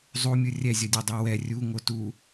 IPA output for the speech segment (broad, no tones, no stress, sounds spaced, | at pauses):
zˤ u mʲ ɯ rʲ ɛ zʲ ʌ dʲ ɛ dˤ ɯ w ɛ rʲ u ŋ o t u